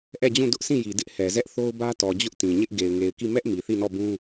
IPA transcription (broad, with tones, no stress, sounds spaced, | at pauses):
ʔ ɛ˦˨ d͡ʑ ũ˦˨ d ʊ˦ ʔ s ĩ˦˨ j i˨ d ɪ˦ ʔ h ɛ˨ z ɛ˦ ʔ θ o˦ ʊ̯ b ä˦ t ɔ˨ d͡ʑ ʊ˦ ʔ t ĩ˨ ɲ ɪ˦ ʔ ɡ e˨ ɪ̯ ŋ e˨ ɪ̯ k i˦˨ m ɛ˦ ʔ m i˨ θ i˦˨ n ɔ˦˨ b ũ˦